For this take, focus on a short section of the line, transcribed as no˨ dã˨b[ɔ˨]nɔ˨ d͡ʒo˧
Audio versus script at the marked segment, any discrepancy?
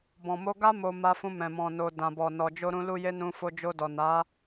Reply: no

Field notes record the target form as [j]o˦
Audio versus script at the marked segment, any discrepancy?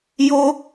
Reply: no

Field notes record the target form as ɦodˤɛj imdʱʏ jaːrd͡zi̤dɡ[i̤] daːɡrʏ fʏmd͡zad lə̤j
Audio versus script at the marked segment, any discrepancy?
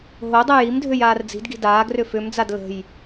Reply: no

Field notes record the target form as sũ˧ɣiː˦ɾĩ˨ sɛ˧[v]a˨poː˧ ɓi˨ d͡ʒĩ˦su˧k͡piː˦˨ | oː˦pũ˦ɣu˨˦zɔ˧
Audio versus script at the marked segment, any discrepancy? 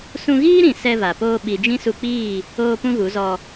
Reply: no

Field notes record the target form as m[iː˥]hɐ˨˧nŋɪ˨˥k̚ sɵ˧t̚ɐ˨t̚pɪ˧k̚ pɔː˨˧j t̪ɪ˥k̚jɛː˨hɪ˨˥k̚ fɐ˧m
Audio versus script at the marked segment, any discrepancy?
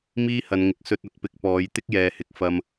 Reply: no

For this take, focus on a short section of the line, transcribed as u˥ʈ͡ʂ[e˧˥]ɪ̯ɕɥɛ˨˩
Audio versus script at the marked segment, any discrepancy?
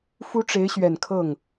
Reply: no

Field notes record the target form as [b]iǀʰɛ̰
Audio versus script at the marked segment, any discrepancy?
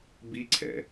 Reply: no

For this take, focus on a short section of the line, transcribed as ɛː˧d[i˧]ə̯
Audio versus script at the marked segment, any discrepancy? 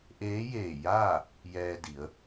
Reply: yes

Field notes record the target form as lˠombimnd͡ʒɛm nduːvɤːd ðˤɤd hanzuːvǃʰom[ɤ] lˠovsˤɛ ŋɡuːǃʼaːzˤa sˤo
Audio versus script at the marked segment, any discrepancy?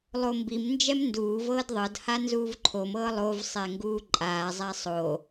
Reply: yes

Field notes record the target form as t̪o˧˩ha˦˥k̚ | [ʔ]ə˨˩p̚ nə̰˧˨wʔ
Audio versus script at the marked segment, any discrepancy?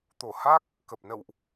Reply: yes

